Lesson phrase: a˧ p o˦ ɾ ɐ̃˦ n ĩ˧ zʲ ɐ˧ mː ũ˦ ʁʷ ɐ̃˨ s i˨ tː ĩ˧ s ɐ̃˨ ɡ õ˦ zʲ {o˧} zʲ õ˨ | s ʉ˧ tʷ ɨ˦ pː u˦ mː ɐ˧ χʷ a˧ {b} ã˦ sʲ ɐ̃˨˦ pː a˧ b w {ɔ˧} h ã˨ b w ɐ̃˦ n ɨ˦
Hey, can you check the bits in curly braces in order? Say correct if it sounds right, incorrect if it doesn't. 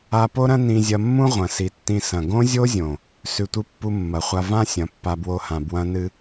incorrect: o˦, incorrect: v, incorrect: o˧

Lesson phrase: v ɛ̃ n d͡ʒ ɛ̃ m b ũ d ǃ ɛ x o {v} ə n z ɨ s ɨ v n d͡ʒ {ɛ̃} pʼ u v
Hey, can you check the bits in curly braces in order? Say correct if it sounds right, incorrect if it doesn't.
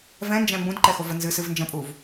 correct, incorrect: ə̃

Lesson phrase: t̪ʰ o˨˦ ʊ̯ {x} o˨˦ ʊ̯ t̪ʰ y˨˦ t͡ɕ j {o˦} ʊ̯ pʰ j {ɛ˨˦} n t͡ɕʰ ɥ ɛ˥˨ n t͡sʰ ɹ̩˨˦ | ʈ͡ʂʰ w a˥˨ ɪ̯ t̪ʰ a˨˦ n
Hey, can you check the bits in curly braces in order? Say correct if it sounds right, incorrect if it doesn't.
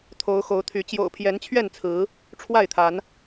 correct, incorrect: o̰˨˩, correct

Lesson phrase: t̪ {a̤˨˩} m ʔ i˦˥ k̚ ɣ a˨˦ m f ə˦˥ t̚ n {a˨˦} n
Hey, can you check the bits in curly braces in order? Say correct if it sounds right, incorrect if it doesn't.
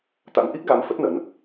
incorrect: a̰˧˥, incorrect: ə˨˦

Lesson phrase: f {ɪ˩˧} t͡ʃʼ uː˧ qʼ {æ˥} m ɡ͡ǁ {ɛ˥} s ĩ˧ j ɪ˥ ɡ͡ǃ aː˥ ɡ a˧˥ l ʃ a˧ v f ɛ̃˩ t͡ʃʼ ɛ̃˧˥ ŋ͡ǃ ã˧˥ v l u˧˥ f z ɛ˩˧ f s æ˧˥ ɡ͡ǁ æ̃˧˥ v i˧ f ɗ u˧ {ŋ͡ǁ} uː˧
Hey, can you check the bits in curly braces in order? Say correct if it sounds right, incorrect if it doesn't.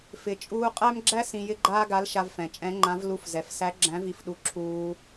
incorrect: ɪ˩, correct, incorrect: æ˥, incorrect: ǁʰ

